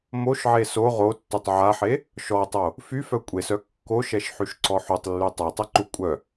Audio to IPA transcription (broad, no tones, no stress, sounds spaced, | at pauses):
m o ʃ ʕ e s o ʁ o tː u tˤ ʕ a ħ e | ʃ ɔ tˤ o | f y f œ kʷʼ e s œ kː o ʃ ɛ ʃ ħ y ʃ ǀ ɔ ħ u tˤ lː y tˤ o tˤ ɛ ǃ u kʷʼ œ